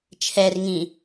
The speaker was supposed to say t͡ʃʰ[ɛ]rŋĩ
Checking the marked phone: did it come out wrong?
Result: no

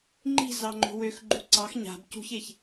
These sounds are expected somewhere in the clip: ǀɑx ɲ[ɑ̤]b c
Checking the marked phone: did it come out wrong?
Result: yes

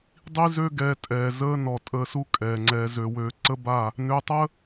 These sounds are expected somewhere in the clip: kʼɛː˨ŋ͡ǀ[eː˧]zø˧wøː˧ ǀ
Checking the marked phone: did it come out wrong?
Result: yes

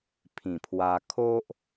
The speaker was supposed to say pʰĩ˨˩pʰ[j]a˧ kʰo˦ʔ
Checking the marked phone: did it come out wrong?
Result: yes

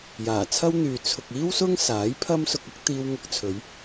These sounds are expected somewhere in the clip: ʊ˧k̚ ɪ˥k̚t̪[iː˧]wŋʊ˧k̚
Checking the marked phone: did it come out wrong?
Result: no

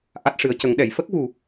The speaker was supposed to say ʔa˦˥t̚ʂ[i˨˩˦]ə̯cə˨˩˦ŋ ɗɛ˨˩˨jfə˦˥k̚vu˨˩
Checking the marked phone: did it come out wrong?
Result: yes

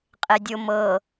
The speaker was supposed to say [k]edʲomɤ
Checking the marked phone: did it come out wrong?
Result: yes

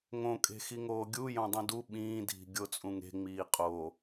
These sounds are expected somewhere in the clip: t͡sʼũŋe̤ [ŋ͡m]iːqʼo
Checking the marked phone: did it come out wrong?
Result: no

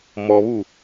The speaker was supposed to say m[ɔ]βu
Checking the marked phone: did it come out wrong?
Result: no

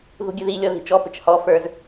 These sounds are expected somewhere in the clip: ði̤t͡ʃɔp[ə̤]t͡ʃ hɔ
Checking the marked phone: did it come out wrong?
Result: no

